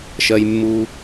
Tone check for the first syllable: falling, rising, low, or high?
low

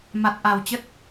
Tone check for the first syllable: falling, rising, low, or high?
low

